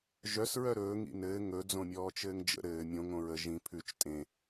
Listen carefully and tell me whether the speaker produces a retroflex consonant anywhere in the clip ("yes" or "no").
no